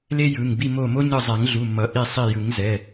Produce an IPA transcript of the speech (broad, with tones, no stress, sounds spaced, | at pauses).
l e˦ j ɯ˩˧˩ ŋ b i˥˩ m o˧˩ m o˦ ɲ ɯ˧˩ zˤ ɛ˨˩˦ ŋ ɮ u˩˧˩ m ʌ˨˩˦ ʔ i˧˩ sˤ i˧˩ j ɯ˨˩˦ ŋ z ɛ˩˧˩